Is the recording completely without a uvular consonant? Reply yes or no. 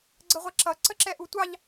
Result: no